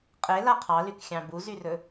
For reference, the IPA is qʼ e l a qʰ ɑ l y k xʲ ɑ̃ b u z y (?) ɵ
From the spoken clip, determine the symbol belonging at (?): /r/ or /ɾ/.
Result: r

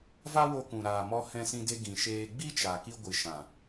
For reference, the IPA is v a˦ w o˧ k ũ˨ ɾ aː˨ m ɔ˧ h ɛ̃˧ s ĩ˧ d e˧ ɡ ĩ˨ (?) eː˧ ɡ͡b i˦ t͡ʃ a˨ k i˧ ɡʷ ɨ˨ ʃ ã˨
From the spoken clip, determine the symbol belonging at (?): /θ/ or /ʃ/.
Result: ʃ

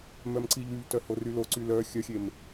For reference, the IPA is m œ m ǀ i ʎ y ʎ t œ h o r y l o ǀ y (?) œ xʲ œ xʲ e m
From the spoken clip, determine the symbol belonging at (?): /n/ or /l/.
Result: l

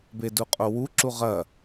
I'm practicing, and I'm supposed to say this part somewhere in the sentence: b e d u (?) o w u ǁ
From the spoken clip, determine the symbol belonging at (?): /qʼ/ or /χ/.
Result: qʼ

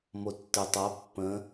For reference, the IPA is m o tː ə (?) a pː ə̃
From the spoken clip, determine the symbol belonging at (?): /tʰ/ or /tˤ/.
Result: tˤ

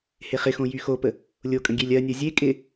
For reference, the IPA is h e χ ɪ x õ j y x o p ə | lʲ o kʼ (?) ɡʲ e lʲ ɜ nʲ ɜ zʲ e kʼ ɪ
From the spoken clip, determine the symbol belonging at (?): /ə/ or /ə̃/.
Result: ə̃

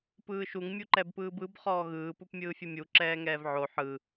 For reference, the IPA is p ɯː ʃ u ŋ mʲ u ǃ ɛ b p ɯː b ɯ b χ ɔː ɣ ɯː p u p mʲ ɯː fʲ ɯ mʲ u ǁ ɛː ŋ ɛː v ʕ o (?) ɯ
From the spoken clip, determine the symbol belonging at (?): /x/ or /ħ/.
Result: ħ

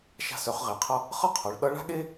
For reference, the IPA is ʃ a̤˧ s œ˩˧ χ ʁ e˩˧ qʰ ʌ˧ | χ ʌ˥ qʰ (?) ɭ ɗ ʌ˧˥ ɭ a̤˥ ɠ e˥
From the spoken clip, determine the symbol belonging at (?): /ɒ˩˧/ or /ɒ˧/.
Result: ɒ˩˧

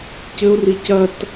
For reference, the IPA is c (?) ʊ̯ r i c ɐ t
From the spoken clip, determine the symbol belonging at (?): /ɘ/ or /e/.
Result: ɘ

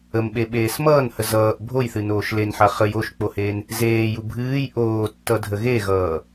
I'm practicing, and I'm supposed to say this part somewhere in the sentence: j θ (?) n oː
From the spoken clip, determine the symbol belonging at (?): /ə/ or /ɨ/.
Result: ɨ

